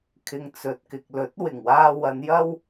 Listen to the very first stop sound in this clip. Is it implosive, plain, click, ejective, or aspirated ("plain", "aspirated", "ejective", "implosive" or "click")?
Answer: aspirated